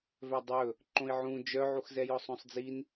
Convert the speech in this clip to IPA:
vœdˤɵ | ǃõi̯ʕũ d͡ʒœʕuxzɛjɔsˤ õsˤd͡zin

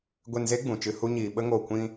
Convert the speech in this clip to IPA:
ɡʷe˧nze˦ ɡ͡bũ˨t͡ʃɨ˧ hu˧ɲiː˨ ɓə˦ ŋoː˨kʷĩ˧

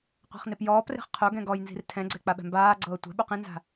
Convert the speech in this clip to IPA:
qʷɛ̤χnepjɔːpre̤χ qʰo ɡɛ̃ɡɔjnzi̤r tʰɛ̃ɡ͡ǀɛ k͡paɓɛ̤mbaːɡ͡ǀɤː tʷɛ̤ɓu qĩnza̤

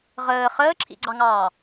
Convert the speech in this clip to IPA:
ʁəː χəːǁʰḭɡ͡ǀɑŋɑː

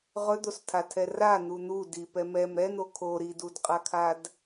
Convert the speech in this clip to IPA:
ʁɵd̪ostʰatʰɛ ran̪u n̪u dipɛ mɛm ɾɛn̪o kʰo ɾidudqʼakʰad

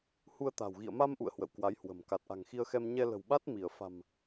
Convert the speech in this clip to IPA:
hu˧ə̯t̪a̤˨˩w ɣḭ˧˨ə̯ma˧mʔṵ˧˨ə̯ hwə̰˧˨wkwa˨˦jhwə̤˨˩m ka˨˩t̚ʔa̤˨˩ŋxi˧ə̯xɛ˧m ɲɛ˧lə̤˨˩wɓa˦˥t̚ mi˧˩ə̯fa̤˨˩m

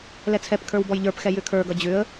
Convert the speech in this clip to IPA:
lɛt͡sʰɛpkʰə˞w bɔjʎə˞pxɛ jʏkʰə˞ɡʌ d͡ʑʏə̯

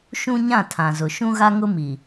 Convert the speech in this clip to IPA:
ʃũ˦ɲã˦˨ tʰã˨zʊ˨ ʃũ˦ɣa˦ŋʊ˦ mi˨

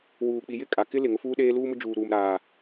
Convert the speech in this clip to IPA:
wuː˨k͡pi˨jɪ˦˨ kʼa˨kɪ˦lɪ˨ ŋʊ˦fuː˦ɗeː˦ luː˦mʊ˦ d͡ʒuː˨ɾuː˨mɾaː˨

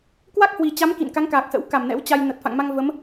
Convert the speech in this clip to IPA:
kwa˦˥k̚hwi˨˩ t͡ɕa˨˦m kḭ˧˨nka˨˦ŋkaː˨˩k̚sə̰˧˥w ka˧˩mnɛ̰˧˥wt͡ɕa˧j nə˨˩t̚fa̰˧˨ŋma˧ŋ və˨˦m

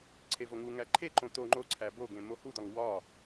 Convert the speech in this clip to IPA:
ǀʰevoŋuŋæ ǃʰeǃõ t̪o ŋ͡ǃoǀʰæ boɡẽ mohud̪ɒŋ wɒ

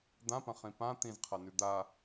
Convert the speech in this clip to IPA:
d̪ãpɐ̃χĩ pã t̪ĩzqʰanʉ d̪a

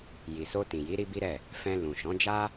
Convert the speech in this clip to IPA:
ji˨so˧tĩ˨ji˨˦ ɾi˦bi˦ɾɛ˦˨ | fɛ̃˧lũ˨ ʃɔ̃˨˦d͡ʒa˦

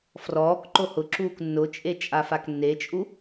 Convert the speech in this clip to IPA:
frɔːkǃo hʊ ǁuːknːʊt͡ʃʼe t͡ʃʼafaknːet͡ʃʼu

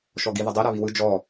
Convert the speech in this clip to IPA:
ʃɔɡiðədˤi ɾaβiwɯ d͡ʒɔ

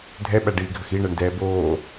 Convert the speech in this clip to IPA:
dʱɛɓæɖiːɡʱəx iɳɛɳdɛː boː

